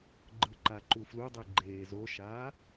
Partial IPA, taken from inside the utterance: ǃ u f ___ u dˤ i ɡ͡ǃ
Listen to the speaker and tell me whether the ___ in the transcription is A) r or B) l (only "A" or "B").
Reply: B